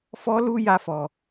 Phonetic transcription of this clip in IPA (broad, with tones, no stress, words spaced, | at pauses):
fɔ˦lu˦ja˧fɔ˨